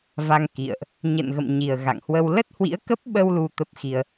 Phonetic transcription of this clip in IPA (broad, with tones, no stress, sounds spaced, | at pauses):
v a˧ ŋ k ḭ˧˨ ə̯ ʔ | ɲ ə̰˧˨ n ɣ ə̰˧˨ m ɲ i˨˩ ə̯ ɣ a̰˧˨ ŋ h w ə˧ w l ə˦˥ t̚ h w ḭ˧˥ ə̯ k ə˦˥ p̚ ɓ ə˧ w l u˧ t̪ ə˦˥ p̚ x i˧ ə̯